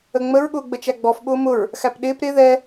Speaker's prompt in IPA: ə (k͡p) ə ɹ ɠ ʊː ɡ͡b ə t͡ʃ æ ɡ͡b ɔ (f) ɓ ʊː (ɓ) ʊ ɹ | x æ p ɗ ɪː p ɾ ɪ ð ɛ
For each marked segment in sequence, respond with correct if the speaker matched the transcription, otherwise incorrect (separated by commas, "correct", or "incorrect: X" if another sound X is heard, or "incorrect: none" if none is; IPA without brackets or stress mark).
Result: incorrect: ŋ͡m, correct, incorrect: m